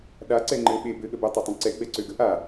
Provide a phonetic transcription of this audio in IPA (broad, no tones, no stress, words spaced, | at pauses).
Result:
ɗa ǀɛŋ͡ǃɘ ɓe bɘ ɠəbə tˤɛtˤẽǀɛ ɡ͡bɛǀøɡə ʔa